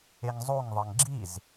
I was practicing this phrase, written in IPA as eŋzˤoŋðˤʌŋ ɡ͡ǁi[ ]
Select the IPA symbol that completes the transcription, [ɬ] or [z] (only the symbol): z